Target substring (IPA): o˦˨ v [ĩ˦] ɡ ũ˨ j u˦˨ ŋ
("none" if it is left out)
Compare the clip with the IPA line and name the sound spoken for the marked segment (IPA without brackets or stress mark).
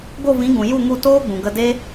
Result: ĩ˨˦